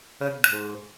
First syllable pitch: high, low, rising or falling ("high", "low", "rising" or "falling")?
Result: high